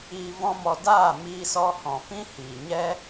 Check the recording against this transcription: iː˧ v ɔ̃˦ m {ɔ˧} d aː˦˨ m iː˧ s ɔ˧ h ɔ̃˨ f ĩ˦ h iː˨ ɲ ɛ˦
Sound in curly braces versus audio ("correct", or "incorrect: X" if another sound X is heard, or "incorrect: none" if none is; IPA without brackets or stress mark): correct